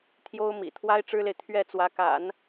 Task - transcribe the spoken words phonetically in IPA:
t̪ʰ j o˥ ʊ̯ m ḭ˨˩ t̪ʰ w a˥ ɪ̯ ʈ͡ʂ ɻ̩˥ l e˨ ɪ̯ t̪ʰ ɥ ɛ˥˩ t͡s w ä˧˥ k a̰˨˩˦ n

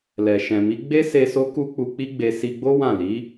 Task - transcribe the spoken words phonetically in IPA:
l ɛ˨ ʃ ɛ̃˨ m i˨˦ ɡ͡b e˦ s e˧ s o˦ k u˦ k͡p u˧ k͡p i˦ ɡ͡b e˧ s i˧ ɡ͡b o˦ w ã˦˨ l i˨˦

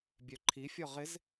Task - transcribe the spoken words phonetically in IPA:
bʲ œ ǃʰ i fʲ ɔ ʁ ɪ z

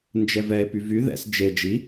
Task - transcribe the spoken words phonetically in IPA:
n d͡ʒ ɛ v ɛ e̯ p y v y ð ɛ̰ s d͡ʒ e d͡ʒ i

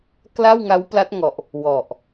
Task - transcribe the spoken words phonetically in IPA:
k l a˥˩ w ŋ a˦˥ w p l a˦˥ t̚ ŋ ɔ˨˩ ʔ | w ɔ˨˩ ʔ

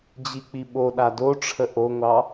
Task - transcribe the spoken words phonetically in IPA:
d͡ʑ i k͡p i ɓ o ɗ a d o ʈ͡ʂʰ ə ʔ o ŋʷ ɑ

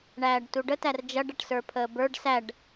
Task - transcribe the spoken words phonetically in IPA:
ɳ æː ɖ t u ɖ ə t æ r d͡ʒ ʌ ɖ ʌ ʈ s ə˞ pʰ əː b ə˞ ɖ s æ ɖ

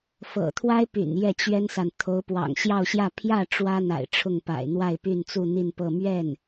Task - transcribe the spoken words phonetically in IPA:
f ɤ̰˨˩ t̪ʰ w a˥ ɪ̯ p y̰˨˩ n j ɛ˥˩ t͡ɕ ɥ ɛ˥ n s a˨ n t̪ʰ o˧˥ ʊ̯ p w ɑ̰˨˩ ŋ ɕ j ɑ˥˧ ʊ̯ ɕ j ä˥˧ pʰ j ä˥˩ ʈ͡ʂ w ä˥ n̪ a̰˨˩ ɪ̯ ʈ͡ʂʰ ʊ˥˩ ŋ p a̰˨˩ ɪ̯ n̪ w a˥˧ ɪ̯ p y˥˧ n t͡s u˥˧ n̪ i˥˧ n p ɤ˥˧ m ɥ ɛ˥˩ n

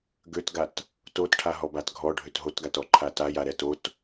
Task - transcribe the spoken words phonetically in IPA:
ɡ ø t ɡ a t | t o t ʈʰ a ɦ ɔ b a t ɡʱ ɔ ɖʱ ø t ɦ o t ɡ a t ɔ ǃʰ a t a j a ɾ ɛ t o t

